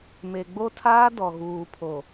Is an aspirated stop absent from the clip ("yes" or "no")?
no